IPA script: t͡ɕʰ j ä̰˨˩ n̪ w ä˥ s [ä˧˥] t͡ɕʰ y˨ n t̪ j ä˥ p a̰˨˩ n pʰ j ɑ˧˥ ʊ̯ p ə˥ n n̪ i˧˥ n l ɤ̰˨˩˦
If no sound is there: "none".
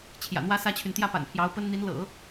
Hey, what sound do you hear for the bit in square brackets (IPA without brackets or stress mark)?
ä˥